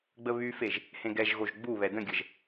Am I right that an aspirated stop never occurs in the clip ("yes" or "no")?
yes